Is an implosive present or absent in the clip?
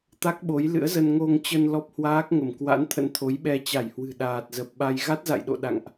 present